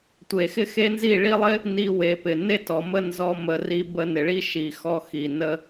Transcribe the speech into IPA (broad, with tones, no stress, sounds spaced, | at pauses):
tʷ e˨ x ɪ˦ x e˦ n z i˦˨ ɭ i˧ lˠ ɪ˦ | n i˧ w e˨ p ɪ˨ n e˦ t ɔ˨ m ə˦ n z ɔ˧ m ə˨ r i˧ b ə˧ n ɪ˨ ɭ i˦ ʃ i˨ x ɔ˧ x i˨ n ə˦